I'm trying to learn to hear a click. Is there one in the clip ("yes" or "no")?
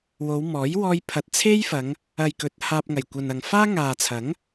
no